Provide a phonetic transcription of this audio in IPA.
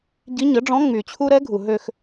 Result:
ɟ i˧˥ ɲ ə˩˥ ɖ͡ʐ ɔ̃˧˥ ŋ͡m y˩ t͡ɕʰ u˥ ɾ ɛ˧˥ ɡʱ u˩ ɦ ø˦˨ x

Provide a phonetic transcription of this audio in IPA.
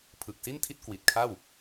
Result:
pʰ ɯ˨˩ k̚ s i˥˩ n tʰ i˥˩ t̚ k w i˨˩ t̚ kʰ a˥˩ w

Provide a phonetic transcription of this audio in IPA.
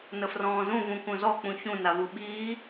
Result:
n ə f r ɔ̃ː z ũ v ũ k ũ z ɔ k͡p ũ ç ũ n a v u ɓ iː

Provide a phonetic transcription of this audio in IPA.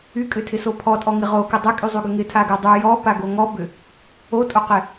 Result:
y kʼ ʏ tʰ ɪ s o pʰ ɔ tʼ ɔ ŋ ɪ ʁ o k ɪ dˤ ɪ kʼ y zˤ y ɡ ʏ ŋ ɪ tʰ a ɡ ɪ dˤ y j ɔ p a ɡ o ŋ ɔ b ʏ | o tʼ o q ɪ

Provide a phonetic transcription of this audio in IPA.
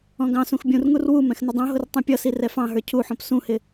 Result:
ɔ̃ ɡ ɑ̃ s ũ x bʲ ũ r ŋ u r w u m ɛ̃ x n ə dˤ ũ ɦ ʊ r tˤ ũ pʲ ʌ s i r ɛ f ɑ̃ ɦ ə˞ cʰ u ħ ɔ̃ p s ũ h ɪ

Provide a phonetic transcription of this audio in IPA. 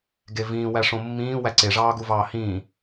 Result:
ɡ e v ĩː w æ ʂ õ mː ĩː w æ ǀ e ʐ ɑː ɡ u v ɑː h ĩː

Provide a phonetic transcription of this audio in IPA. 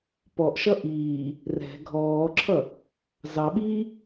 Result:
p ɔ ʔ ʃ ʌ ʔ iː | r ɛ̤ ɡʱ ɔː ǁʰ ʌ | z ɑ ɓ iː

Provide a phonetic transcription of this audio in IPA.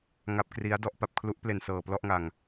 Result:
ŋ a˦˥ p̚ k r i˦˥ a̯ d ɔ˥˩ ʔ p a˨˩ p̚ kʰ l u˦˥ ʔ p l e˨˩ n s ɤː˨˩ p l ɔ˥˩ ʔ ŋ a˨˩ ŋ

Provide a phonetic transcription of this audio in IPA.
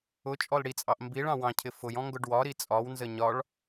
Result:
ʊ t͡ʃʼ ɔ l ɽ i t͡sʼ ɑ ʔ m b i ɭ ɑ̃ w ɑ̃ cʰ ɪ f ʊ j ɔ̃ ŋ ɡ ʊ ɖ w ɒ ɾ i t͡sʼ ɒ w n z ə ɲ ɒ ɭ

